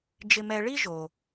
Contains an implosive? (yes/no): no